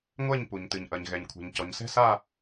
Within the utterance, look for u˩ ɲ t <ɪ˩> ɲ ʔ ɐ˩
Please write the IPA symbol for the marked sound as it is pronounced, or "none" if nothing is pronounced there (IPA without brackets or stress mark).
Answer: ɨ˩